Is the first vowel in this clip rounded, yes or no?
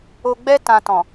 yes